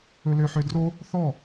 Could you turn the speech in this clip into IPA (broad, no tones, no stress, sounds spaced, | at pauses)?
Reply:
ɵ l ø ħ ø d r o | θ ɔ